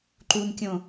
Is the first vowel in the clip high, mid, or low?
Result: high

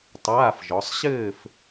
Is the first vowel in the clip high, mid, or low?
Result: low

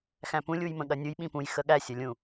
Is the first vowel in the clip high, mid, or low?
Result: low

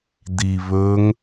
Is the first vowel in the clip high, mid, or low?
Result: high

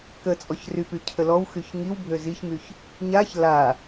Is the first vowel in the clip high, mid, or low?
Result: mid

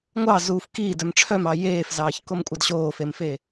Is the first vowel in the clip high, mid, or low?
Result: low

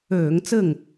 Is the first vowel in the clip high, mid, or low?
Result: mid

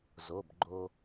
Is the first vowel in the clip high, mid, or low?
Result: mid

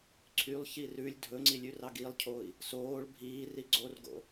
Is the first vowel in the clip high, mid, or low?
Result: high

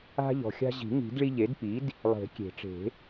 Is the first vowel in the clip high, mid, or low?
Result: low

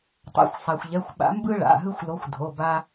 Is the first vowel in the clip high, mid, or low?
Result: low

